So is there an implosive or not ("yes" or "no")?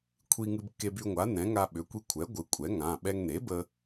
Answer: yes